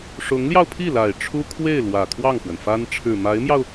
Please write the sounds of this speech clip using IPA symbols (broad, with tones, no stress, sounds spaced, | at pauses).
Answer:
ʂ ʊ˧˥ ŋ l j ɑ˧ ʊ̯ pʰ i˥˩ l a˨˩ ɪ̯ ʈ͡ʂʰ u˥ kʰ w e˥˩ ɪ̯ l w ä˨˩ kʰ w ɑ˥˩ ŋ x w ə˩ n f a˥ n ʈ͡ʂʰ ɻ̩˨˩ m a˧˥ ɪ̯ m j ɑ˧ ʊ̯